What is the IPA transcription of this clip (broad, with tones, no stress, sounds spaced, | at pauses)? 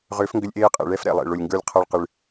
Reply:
ʁ ʏː˨˥ f ŋ ɡ ʏ˧ lʲ ʔ eː˧ qʼ ḛ˨˩ ɭ ɛ˧ f ɾ ɛ̰˨˩ lˠ ḛ˨˩ ɭ o˨˩ lʲ ŋ ɡ ə˞˧ lʲ qʰ a˧ ɭ q ɨ˨˩ ɭ